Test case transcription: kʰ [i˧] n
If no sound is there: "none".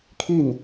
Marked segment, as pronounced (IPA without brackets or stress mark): i˥˨